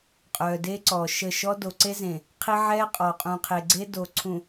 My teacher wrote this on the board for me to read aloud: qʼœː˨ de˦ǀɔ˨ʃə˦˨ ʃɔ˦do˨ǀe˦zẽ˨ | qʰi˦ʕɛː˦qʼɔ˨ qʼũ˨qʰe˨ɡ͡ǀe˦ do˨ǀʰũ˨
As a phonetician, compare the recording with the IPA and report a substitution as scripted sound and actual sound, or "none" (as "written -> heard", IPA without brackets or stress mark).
none